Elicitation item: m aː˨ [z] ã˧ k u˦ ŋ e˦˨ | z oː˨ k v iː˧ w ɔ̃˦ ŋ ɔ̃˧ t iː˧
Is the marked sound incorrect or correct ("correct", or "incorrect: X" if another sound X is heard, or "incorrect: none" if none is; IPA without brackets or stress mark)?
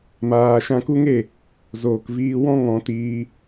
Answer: incorrect: ʃ